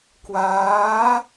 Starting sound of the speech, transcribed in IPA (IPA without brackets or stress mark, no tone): k